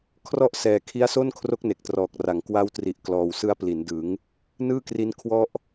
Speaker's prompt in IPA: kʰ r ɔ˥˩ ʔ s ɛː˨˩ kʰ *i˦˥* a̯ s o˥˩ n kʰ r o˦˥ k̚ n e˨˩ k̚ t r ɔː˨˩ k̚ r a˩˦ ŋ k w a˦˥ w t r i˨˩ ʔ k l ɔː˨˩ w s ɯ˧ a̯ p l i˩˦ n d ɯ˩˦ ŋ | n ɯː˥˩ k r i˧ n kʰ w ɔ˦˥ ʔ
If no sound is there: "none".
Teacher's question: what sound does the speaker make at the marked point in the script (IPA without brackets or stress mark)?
i˦˥